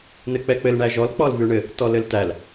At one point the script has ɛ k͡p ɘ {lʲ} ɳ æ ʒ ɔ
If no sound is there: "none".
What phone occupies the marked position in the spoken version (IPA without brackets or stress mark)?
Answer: l